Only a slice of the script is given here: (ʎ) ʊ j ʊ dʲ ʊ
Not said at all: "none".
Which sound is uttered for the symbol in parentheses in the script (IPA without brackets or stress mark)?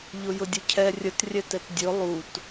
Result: ʎ